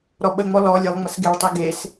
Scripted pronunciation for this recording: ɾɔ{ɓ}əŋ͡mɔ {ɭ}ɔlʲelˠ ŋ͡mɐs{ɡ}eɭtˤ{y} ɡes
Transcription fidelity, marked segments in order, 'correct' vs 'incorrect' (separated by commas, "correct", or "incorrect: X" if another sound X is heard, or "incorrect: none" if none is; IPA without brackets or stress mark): correct, incorrect: l, correct, incorrect: i